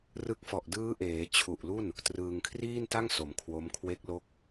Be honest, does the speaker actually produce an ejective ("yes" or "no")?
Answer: no